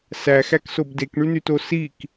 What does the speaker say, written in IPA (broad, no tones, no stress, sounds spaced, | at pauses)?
s æ x æ k s o b d e k ɳ y n y t o s i k